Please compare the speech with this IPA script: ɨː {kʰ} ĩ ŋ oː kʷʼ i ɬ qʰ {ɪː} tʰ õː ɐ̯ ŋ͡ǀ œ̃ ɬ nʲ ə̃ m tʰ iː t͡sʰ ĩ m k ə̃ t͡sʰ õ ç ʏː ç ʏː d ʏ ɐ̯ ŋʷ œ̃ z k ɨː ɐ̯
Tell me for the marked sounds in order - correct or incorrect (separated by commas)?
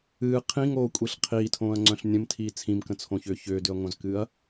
incorrect, incorrect